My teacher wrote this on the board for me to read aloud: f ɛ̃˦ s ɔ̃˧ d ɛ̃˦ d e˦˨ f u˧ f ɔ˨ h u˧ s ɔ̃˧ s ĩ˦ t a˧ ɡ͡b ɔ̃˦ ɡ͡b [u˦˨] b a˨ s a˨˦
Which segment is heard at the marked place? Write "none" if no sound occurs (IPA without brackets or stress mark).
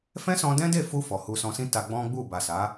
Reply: u˦˨